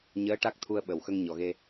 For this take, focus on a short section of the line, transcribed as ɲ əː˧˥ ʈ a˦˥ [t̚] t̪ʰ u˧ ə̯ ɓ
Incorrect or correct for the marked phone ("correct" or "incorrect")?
incorrect